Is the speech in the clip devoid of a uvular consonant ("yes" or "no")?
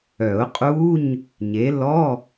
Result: no